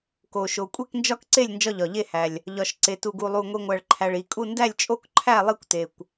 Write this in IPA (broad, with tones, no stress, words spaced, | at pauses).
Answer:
ko˨˩ʃo˨˩ kʷʼe˥˨knd͡ʒɒ˥˨kǀe˥˨lʲ nd͡ʒɒ˥˨ʎɒ˨˩ʎe˥˨hæ˨˩lʲ | ʎɒ˨˩ʃǀe˨˩ tu˨˩ɡu˨˩lˠu˨˩ ŋʷi˨˩ŋʷæ˨˩ɭǃʰæ˨˩ɭ i˨˩kʼu˥˨ ndæ˥˨lʲt͡ʃʼo˥˨kǃʰæ˥˨ lˠi˥˨kʷte˨˩kʷ